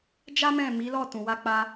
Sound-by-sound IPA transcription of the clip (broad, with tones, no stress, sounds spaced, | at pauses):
d͡ʒ a˦ m ɛ̃˦˨ m i˨˦ l ɔ˦˨ t ũ˨ w a˧ k͡p a˧